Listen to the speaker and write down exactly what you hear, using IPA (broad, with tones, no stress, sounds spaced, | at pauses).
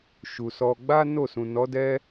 ʃ u˨ s ɔ˧ ɡ͡b a˦ n o˦˨ s ũ˨ n ɔ˨˦ d ɛ˦